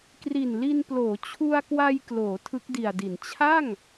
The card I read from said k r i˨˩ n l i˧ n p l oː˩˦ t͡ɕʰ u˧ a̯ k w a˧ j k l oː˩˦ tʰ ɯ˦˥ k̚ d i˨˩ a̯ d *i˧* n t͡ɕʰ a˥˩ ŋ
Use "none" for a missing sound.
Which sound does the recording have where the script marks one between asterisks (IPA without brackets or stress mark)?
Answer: i˩˦